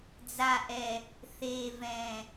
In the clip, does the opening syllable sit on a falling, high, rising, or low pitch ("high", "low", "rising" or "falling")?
low